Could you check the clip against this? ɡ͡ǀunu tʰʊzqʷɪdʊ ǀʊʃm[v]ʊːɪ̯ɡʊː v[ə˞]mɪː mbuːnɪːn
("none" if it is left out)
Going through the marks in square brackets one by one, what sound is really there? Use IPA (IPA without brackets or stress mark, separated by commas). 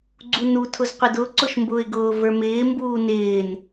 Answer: b, ə˞